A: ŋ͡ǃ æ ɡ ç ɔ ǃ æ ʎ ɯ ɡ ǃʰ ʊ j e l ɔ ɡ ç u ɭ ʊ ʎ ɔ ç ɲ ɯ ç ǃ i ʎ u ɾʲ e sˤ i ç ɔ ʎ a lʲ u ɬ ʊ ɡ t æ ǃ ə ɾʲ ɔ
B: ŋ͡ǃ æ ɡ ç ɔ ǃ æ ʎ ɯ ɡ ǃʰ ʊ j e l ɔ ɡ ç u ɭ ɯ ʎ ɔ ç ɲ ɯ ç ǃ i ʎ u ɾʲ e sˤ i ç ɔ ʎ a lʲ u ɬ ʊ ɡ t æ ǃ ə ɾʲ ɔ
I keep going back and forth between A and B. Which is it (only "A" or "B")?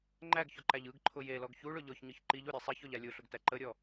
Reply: A